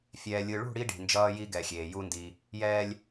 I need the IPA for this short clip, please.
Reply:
fʲ ɛː˨ lʲ ɯ˨ ɭ ṳ˦˨ ɽ i˦ ɖ i̤˨ n d͡ʒ ʌː˦ j i˦ ɡ ɛ˨ xʲ eː˨ j u˦ n d i˦ | j ɛː˦ lʲ

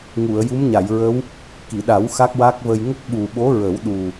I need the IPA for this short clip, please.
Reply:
ŋ u˨˩˨ ə̯ j u˧˥ m ɲ a˨˩˨ j ɹ ə˧˥ w | k i˨˩˨ ɗ a˨˩˦ w x a˦˥ k̚ w a˦˥ k̚ v ə˧ j ŋ ə˦˥ k̚ ɓ u˨˩ ɓ o˧˥ ɹ ə˨˩˦ w ɗ u˨˩

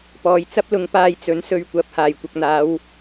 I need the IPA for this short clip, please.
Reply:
p ɔː˨ j t͡s ɐ˥ p̚ l ʊ˨˧ ŋ p aː˧ j t͡s ɵ˨˥ n s ɵ˧ ɥ kʷ ɐ˨˥ p̚ h aː˨˩ j kʷ ɐ˨ k̚ n̪ aː˨˧ w

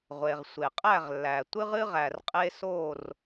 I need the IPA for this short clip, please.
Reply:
ʁʷ e˩ ʁ sʷ e˩ qʼ æ˥˩ ʁ lː æ˩ tʷ ɨ˦ ʁ ɨ˦ ʁ æ˩ r qʼ e˦ s o˥˩ r

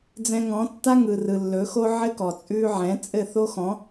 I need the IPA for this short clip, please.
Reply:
d͡z ɛ̃˧ ŋ ɔ̃˨˦ tː a˦ ŋ ɯ˨ r ɯ˨ lː ɵ˨˦ x o˦ ʕ ɘ˦ k ɔ˨ t͡sʼ ʉ˧ ʕ ɛ̃˨˦ t͡sʼ ɘ˦˨ θ o˦ x ɔ̃˨˦

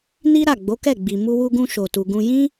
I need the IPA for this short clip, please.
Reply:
n i˦ ɾ a˦˨ ɡ͡b o˨˦ k ɛ˦˨ ɡ͡b i˨ m u˧ w u˧ ɡ ũ˧ ʃ o˨ t u˨ ɡ ũ˧ j ĩ˦

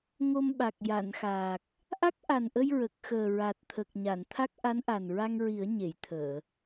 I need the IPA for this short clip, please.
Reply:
ŋ o˧ m ɓ a˨˩ k̚ j a˨˩˨ n x aː˨˩ k̚ | ʔ a˦˥ k̚ ʔ a˨˩ n ʔ ə˧ j ɹ ə˨˩ k̚ x əː˨˩ ɹ a˨˩ t̚ t̪ʰ ə˨˩ k̚ ɲ a˨˩˨ n t̪ʰ a˦˥ k̚ ʔ a˧˥ n ʔ a˨˩ n ɹ a˧ ŋ ɹ i˨˩˦ ə̯ ɲ e˨˩˨ j t̪ʰ əː˨˩˨

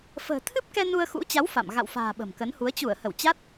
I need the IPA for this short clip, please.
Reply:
f ə̤ː˨˩ t̪ʰ ɨ˦˥ p̚ k ɛ˧ n u˧ ə̯ x ṵ˧˥ t͡ɕ a˨˦ w f a̰˧˨ m ɣ a̰˧˨ w f a̤ː˨˩ ɓ ə̤˨˩ m k ə˨˦ n h u˨˦ ə̯ t͡ɕ u˧˩ ə̯ h ə˧˩ w t͡ɕ a˦˥ t̚

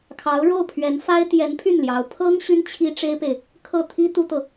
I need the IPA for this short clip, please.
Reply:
kʰ ɑ˧˥ ʊ̯ ɻ o˥˩ ʊ̯ pʰ ɥ ɛ˧˥ n f a˥ ɪ̯ t̪ j ɛ˧˥ n pʰ y˥˩ n l j ɑ˧˥ ʊ̯ pʰ ɤ˥ ŋ ɕ y˥ n t͡ɕʰ i˥ ʈ͡ʂ e˥ ɪ̯ p e˨ ɪ̯ | kʰ ɤ˥˩ t̪ʰ i˥ t̪ u˥ t̪ ɤ˨

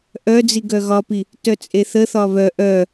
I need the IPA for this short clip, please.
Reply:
ʔ œ d͡z i ɡ œ ɣ ɒ p i | t œ t͡sʼ e θ ə θ ɒ β œ ʔ œ

